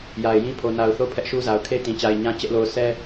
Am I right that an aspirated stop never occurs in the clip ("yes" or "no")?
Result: no